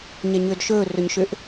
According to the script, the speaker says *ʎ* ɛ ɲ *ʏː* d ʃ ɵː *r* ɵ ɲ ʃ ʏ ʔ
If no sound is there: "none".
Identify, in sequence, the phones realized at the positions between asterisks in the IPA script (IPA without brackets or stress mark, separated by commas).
ɲ, ʏː, r